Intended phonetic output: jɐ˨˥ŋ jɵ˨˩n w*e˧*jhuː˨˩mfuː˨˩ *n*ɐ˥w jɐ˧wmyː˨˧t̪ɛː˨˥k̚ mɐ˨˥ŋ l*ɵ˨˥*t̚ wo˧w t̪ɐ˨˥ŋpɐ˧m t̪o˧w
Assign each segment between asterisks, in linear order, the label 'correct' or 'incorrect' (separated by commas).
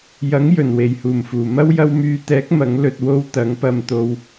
incorrect, incorrect, incorrect